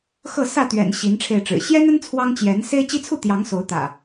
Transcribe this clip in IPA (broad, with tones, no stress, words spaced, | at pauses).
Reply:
xɤ˥˨sä˥˨t̪ɥɛ̰˨˩n ɕi˨˦nʈ͡ʂʰe˧ɪ̯ʈ͡ʂɻ̩˨˩ ɕjɛ˦nə˦n t͡sʰwɑ˦ŋt͡ɕjɛ˨˦n se˦ɪ̯t͡ɕi˦t͡sʰu˥˨t̪jɑ˨˦ŋ so˨˦ʊ̯ t̪ä̰˨˩